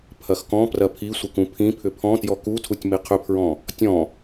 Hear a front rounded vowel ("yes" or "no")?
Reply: yes